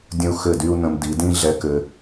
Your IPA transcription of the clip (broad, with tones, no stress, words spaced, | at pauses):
dʲə̃˦u̯ xɘ˦˨dy˦u̯nə̃˧m di˨˦dĩ˦ ɮɛ˦kɘ˦